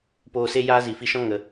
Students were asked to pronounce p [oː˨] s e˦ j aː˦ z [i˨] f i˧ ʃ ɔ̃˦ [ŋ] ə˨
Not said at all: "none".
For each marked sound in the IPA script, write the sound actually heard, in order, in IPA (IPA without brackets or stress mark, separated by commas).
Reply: oː˧, i˨, ŋ